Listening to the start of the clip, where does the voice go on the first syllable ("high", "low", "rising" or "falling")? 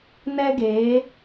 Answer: high